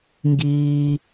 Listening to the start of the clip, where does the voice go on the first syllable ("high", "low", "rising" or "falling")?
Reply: low